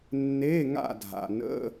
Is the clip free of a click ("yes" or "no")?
yes